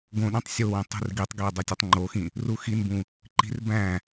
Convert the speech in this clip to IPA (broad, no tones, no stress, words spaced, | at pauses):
ɡõɗĩtˤ sʲowĩ tˤṳrɡitˤɡe dˤutʲutˤŋ͡ǃoxĩ | ruxinbũ | ǃi̤r bæ̃